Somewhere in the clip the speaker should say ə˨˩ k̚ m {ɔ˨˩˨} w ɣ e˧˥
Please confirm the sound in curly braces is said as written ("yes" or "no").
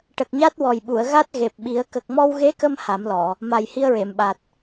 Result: no